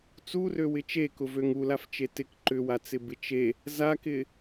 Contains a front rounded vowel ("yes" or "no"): yes